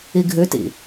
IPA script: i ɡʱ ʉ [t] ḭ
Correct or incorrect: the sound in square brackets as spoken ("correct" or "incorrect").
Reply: correct